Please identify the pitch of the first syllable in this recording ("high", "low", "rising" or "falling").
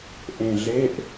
low